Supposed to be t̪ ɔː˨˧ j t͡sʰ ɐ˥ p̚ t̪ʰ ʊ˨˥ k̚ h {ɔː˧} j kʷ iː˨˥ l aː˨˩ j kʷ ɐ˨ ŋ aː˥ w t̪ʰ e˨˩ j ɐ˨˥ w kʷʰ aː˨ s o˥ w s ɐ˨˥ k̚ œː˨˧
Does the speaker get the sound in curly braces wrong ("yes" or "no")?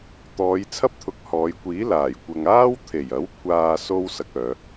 yes